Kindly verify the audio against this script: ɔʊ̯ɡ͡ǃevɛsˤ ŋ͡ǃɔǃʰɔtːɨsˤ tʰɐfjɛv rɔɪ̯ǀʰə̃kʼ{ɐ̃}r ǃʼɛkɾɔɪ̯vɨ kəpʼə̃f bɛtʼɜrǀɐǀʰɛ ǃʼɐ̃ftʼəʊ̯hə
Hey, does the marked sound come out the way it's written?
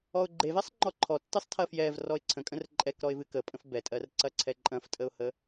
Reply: no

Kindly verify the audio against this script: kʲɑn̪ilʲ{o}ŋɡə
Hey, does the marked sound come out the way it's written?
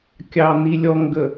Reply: no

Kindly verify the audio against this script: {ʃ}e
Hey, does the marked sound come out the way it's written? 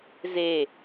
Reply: no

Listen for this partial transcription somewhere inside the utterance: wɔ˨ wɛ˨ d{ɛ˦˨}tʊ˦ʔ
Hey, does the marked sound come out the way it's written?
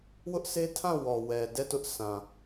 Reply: yes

